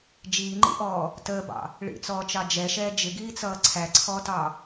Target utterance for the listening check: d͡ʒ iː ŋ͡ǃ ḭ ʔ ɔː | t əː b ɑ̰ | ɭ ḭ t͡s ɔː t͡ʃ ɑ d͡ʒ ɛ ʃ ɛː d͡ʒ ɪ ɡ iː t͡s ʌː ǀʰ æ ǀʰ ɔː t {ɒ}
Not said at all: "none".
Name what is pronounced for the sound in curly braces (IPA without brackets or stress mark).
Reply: ɑ